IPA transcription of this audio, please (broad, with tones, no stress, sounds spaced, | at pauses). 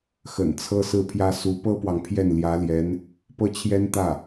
x ə̰˨˩ n t͡sʰ ɤ˥ s ɹ̩˥˩ pʰ j ä˥ s u˧˥ p ɤ˥ p w ɑ˨ ŋ pʰ j ɛ˥˩ n l j ä˧˥ l j ɛ˧˥ n | p ɤ˥˩ t͡ɕʰ j ɛ˥ n t̪ ä˥˩